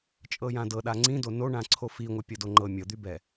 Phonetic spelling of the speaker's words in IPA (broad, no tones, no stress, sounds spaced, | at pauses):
t͡ʃʼ ɤ j ã d ɤ ɗ a ŋ͡ǀ ĩ d o n o ɳ ã ǀʰ o f i ŋʷ ɤ pʲ ɤ d o ŋ͡ǃ ɤ mʲ ɤ d̪ y b ɛ